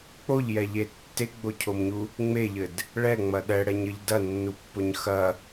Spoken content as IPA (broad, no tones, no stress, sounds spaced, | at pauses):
k͡p o ʎ j ɛ ʎ e tː e ɡ͡b o cʰ o m ɲ u | ŋ͡m e ʎ ɘ d | ɭ ɛ ŋ͡m ɐ ɗ ɛ ɽ ɛ ɲ ɘ ʎ d ɐ nː u pː o ɲ x ɐ